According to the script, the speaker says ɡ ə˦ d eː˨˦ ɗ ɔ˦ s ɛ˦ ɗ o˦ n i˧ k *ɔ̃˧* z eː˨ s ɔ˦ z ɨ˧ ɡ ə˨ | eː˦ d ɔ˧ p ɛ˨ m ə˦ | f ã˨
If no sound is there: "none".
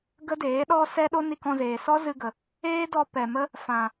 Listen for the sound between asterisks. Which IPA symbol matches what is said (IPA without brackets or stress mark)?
ɔ̃˧